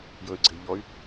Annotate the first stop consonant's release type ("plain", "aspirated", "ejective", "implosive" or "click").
click